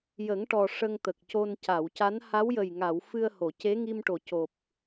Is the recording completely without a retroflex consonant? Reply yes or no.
no